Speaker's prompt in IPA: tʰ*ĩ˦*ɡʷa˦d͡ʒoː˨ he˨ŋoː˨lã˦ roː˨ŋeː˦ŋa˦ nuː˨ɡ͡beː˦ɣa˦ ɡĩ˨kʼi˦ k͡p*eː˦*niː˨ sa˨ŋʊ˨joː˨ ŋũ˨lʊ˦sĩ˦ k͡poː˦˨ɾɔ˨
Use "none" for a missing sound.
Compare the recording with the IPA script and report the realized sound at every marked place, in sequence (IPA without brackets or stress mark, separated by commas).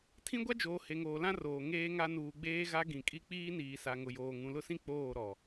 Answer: ĩ˦, iː˦